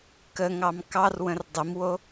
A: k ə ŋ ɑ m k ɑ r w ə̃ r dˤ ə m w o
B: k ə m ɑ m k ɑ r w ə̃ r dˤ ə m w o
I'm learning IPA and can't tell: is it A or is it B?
A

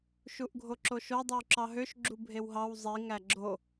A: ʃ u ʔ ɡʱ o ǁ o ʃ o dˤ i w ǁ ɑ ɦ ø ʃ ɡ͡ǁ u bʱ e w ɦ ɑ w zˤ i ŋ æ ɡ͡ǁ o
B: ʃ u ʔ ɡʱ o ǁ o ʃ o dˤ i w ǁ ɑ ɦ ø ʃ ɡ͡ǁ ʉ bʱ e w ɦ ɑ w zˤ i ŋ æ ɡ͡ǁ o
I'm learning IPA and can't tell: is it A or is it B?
A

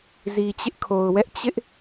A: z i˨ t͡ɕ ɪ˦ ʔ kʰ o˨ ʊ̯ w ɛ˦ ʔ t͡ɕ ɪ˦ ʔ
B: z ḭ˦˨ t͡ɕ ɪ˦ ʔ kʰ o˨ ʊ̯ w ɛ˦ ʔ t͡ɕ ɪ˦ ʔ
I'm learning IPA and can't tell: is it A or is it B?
A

